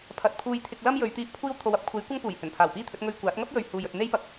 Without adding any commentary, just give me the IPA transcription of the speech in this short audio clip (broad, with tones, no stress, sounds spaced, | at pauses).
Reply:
pʰ ɐ˨˥ t̚ pʰ uː˧ j t̪ʰ ɪ˧ k̚ l ɐ˥ m j ɵ˨˧ ɥ t̪ iː˨ p̚ kʷʰ iː˧ w t̪ʰ o˨˧ w ɐ˧ p̚ kʷʰ e˨˥ j kʷ ɐ˥ ŋ p uː˨˩ j h ɵ˨˩ n pʰ aː˨˩ w p iː˥ t̪ʰ ɵ˨˥ t̚ ŋ ɵ˧ ɥ kʷ aː˨˥ t̚ ŋ ɐ˥ p̚ j ɵ˨ ɥ h uː˨ j ɵ˨ t̚ n̪ e˥ j p ɐ˧ k̚